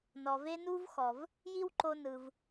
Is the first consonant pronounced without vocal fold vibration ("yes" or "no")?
no